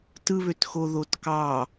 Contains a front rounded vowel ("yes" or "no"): yes